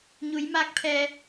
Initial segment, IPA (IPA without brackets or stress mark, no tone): ɲ